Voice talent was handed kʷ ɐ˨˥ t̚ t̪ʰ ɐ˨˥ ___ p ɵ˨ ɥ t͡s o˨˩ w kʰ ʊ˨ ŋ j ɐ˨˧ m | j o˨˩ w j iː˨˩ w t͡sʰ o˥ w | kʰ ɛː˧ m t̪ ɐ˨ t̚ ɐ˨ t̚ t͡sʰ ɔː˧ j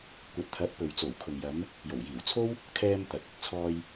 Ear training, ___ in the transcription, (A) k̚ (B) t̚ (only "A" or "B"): B